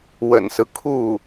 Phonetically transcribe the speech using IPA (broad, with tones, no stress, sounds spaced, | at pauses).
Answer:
w ə̰˨˩ n s ɹ̩˦ kʰ u˥˩